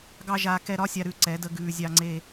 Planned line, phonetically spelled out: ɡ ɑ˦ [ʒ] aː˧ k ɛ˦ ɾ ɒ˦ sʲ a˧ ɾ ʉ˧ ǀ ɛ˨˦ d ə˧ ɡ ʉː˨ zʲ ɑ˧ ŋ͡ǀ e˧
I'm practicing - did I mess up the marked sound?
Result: no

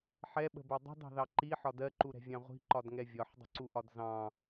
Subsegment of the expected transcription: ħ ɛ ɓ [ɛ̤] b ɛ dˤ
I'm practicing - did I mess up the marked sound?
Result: yes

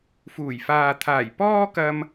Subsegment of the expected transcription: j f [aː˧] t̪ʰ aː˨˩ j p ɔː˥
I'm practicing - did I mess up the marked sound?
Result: yes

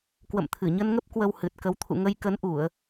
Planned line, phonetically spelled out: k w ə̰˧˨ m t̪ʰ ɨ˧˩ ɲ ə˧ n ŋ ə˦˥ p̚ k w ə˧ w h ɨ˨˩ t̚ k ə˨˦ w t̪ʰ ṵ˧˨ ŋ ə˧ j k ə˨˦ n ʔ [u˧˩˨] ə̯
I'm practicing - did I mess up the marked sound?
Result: no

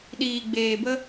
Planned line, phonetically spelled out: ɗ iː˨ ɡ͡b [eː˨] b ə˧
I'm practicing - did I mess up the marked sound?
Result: no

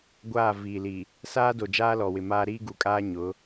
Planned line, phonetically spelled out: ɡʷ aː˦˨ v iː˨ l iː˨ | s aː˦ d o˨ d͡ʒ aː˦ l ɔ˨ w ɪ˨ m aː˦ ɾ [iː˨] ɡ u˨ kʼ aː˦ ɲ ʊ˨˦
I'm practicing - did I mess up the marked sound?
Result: yes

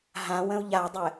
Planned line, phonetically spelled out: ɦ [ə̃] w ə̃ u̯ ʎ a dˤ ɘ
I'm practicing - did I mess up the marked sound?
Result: yes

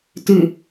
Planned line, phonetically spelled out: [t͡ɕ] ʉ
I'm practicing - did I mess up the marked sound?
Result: yes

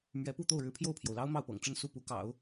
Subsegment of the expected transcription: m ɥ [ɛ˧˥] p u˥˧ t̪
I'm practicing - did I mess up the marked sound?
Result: no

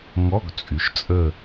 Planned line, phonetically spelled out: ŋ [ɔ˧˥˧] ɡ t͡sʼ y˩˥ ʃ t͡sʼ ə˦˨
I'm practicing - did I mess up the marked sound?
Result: no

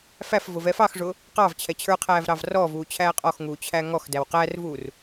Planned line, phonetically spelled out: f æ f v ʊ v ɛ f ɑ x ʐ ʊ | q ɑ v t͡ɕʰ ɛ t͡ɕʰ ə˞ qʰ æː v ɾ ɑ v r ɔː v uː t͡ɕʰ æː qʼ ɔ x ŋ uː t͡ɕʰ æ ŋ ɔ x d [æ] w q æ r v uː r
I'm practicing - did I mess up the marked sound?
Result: no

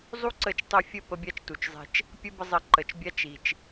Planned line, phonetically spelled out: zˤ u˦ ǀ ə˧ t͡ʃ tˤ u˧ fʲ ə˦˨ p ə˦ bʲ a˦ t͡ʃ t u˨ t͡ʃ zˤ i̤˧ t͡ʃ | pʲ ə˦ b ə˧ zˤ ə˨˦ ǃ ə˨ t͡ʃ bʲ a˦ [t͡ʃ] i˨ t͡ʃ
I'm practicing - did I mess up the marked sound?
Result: no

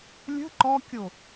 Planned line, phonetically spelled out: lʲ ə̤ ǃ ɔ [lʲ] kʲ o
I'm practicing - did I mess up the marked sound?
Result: yes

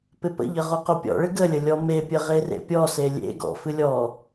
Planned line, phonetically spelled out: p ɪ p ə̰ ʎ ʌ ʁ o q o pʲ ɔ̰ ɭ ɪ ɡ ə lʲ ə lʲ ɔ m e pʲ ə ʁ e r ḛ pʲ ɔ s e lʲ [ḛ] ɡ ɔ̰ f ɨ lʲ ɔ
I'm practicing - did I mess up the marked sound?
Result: no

